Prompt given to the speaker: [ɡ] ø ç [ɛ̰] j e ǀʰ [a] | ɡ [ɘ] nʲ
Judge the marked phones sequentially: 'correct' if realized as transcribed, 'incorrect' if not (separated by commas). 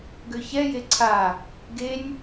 correct, incorrect, correct, incorrect